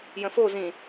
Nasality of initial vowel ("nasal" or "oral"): nasal